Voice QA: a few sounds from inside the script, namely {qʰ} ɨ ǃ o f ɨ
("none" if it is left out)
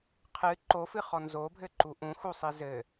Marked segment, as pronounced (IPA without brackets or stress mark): qʰ